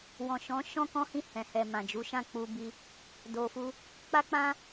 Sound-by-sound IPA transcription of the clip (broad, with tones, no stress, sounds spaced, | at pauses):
w ɔ̃˨ ʃ ɔ̃˨˦ ʃ ɔ̃˦ k ɔ̃˦ h ĩ˦˨ h ɛ̃˨ h ɛ˨ m ã˨ d͡ʒ u˨˦ ʃ ã˦˨ k͡p u˧ b i˧ | d o˨ f u˧ | k͡p a˦ k͡p ã˦